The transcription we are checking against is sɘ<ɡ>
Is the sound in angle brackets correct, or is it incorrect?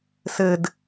incorrect: d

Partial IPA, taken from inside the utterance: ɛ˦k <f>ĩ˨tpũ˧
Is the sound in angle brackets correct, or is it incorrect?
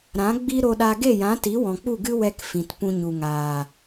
correct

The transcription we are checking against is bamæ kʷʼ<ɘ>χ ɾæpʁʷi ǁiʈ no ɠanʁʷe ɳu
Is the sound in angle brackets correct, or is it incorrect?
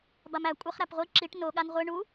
correct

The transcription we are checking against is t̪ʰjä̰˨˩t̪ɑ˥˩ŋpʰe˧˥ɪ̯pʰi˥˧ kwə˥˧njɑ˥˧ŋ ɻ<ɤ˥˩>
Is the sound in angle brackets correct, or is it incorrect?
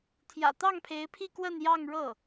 correct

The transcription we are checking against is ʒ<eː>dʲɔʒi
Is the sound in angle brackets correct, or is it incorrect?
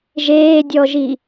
correct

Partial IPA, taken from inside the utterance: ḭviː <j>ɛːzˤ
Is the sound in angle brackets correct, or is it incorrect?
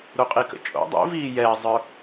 correct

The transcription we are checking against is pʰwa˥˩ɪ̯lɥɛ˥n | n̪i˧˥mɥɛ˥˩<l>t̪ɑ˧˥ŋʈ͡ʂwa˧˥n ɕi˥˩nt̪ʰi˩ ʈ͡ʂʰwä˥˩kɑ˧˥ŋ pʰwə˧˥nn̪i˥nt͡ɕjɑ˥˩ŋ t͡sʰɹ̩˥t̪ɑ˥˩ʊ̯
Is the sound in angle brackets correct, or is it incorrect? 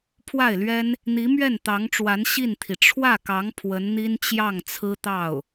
incorrect: n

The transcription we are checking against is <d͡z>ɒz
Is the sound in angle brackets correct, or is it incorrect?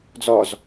correct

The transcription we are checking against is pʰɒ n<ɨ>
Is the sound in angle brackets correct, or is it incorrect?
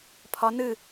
correct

